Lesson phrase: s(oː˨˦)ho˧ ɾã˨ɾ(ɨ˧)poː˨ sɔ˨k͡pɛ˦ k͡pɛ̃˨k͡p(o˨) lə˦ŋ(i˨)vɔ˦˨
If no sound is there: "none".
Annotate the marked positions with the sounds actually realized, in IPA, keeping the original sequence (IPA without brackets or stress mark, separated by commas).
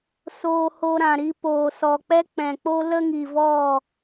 oː˧, i˧, o˦, i˨